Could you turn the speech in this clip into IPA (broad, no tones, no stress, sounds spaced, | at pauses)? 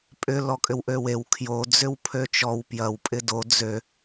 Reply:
pʼ ʏ l ɔ kʼ ʏ w ʔ ø w e w kʰ j o d͡z ʏ w pʰ ø t͡ʃ ɔ w p j ɐ w pʼ ɪ d o d͡z ø